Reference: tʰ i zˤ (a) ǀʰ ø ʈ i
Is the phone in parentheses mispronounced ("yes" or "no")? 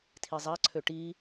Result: no